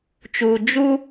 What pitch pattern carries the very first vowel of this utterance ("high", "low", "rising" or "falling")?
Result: low